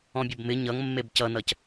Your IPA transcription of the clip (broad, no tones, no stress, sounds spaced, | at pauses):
ɔ̃ bʲ ʌ b m ɪ ɲ ʌ ŋ mː e b c ʌ n ʌ c